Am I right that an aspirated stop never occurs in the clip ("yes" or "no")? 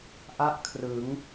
no